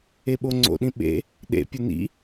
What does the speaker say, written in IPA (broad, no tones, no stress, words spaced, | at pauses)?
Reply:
eɓoŋ͡ǀo̰ɗĩ ɓḛ | ɗḛpʲʊ nḭ